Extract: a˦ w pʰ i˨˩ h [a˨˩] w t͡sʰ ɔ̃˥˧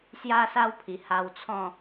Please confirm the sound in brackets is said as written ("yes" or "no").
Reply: no